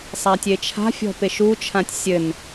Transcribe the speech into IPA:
sˤatʲet͡ʃʰa̤fʲɔ̤ peʃut͡ʃʰãtʲ sʲɘn

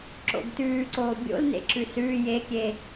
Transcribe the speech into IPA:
ǁo̰ɡtʉːǀoː bʲo̰lnḛ ǁʉsʉː jekʲe

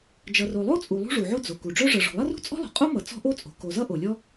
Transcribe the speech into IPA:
d͡ʒʌ˩ro˩lˠo˥t͡sʼu˩ lˠṳ˥ʐu˩ʕo˥ d͡zo˩ ku˩ɖ͡ʐœ˥ ʐʌ˩ʐɔ̤˩lˠʌ˥rṳ˥ t͡sʼɔ̤˥lˠo̤˩ qʼo˥mʌ˩ t͡sɔ̤˥ʔo˥t͡sʼo̤˩ ko˩zʌ˥ ʔo˩lʲɔ˥

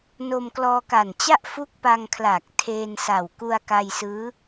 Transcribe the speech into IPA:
no˧mklɔː˧ka˨˩nt͡ɕa˥˩ʔ fu˦˥k̚pa˧ŋkʰlaː˨˩k̚ tʰeː˧nsa˨˩w ku˧a̯ka˧jsɯː˦˥

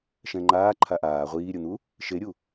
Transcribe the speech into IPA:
ʃɛ̃ŋ͡ǃaː ǃʰaʔaː ʁʷiːɾʲʊn̪u | ʃeɾʲu

